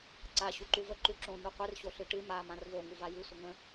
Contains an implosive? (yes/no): no